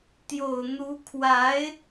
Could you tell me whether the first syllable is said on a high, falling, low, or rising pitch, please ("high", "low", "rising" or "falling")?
low